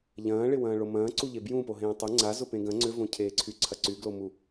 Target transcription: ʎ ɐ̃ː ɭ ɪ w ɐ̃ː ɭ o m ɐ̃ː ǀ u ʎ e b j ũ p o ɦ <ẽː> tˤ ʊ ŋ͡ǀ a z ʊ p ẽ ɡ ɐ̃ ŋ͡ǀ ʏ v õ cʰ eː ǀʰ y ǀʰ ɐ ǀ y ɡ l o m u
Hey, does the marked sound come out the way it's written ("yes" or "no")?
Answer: yes